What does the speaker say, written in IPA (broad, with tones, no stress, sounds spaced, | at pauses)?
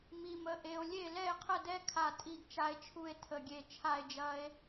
m i˦˥ m ə˦˥ ʔ e˦˥ o̯ lʲ e˥˧ l ɛ˥˧ e̯ qʰ ə˥˧ d ɛ˦˥ kʰ a˥˧ tʼ i˥˧ ɡ t͡ʃ a˦˥ e̯ t͡ʃʰ u˥˧ e̯ tʰ ə˥˧ ɡʲ e˥˧ t͡ʃʰ a˥˧ e̯ d͡ʒ ɐ˦˥ e̯